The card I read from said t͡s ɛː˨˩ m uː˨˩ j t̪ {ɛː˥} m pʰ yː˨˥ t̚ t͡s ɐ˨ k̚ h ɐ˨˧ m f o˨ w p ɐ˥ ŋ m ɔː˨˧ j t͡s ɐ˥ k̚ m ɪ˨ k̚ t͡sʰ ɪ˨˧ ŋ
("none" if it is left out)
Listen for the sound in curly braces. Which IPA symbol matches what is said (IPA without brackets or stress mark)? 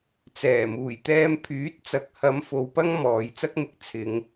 ɛː˧